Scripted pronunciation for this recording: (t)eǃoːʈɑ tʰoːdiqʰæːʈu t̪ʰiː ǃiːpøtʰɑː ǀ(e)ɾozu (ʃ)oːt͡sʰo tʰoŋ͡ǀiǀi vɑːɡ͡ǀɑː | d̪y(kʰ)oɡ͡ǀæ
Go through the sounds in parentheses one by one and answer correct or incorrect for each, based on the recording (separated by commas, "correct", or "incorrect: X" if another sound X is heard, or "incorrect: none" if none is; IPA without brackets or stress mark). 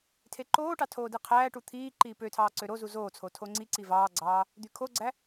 incorrect: tʰ, incorrect: ø, incorrect: z, correct